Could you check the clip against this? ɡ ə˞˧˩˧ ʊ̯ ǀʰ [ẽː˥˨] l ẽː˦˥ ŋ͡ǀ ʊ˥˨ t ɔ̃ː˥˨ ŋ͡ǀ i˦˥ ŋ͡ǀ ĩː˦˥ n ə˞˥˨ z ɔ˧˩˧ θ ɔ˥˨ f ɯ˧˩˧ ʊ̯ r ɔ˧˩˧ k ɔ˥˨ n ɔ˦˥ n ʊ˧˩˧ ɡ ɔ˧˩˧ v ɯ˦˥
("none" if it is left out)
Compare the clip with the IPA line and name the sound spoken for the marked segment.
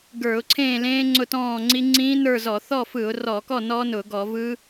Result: ẽː˥˨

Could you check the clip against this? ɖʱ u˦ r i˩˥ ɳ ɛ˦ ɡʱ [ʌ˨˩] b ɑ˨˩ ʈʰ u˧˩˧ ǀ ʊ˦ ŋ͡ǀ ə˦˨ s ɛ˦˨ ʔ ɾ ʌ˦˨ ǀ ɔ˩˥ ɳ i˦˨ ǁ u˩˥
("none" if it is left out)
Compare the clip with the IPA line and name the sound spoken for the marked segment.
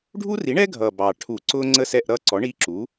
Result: ʌ˨˩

